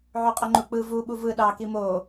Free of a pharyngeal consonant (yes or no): no